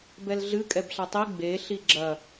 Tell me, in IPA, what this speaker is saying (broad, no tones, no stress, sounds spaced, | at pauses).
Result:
b ɛ l ɮ ɨ kʼ ɛ b ɬ a tˤ i ɡ͡b e ɬ i ɡ͡ǁ ɐ